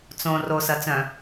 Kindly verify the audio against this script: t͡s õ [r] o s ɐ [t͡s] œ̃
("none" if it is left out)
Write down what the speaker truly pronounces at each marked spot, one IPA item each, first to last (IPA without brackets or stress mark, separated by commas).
r, t͡s